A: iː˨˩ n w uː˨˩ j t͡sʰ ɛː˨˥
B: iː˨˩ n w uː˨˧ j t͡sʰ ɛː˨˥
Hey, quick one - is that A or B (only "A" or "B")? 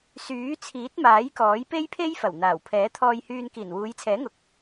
B